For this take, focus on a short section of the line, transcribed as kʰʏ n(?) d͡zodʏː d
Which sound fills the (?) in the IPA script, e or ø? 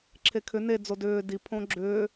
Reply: e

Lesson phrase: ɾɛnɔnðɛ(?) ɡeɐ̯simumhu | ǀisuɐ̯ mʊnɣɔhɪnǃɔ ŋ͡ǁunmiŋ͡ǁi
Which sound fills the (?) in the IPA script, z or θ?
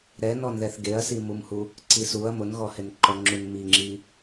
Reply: θ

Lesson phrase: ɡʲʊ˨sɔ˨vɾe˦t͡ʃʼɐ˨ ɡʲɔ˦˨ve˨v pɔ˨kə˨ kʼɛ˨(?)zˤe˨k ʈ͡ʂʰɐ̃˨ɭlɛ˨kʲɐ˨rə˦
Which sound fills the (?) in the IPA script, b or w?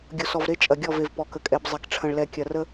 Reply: b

